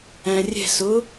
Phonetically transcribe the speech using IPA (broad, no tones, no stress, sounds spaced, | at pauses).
æ̃ rʲ ɛ̤ s ʊ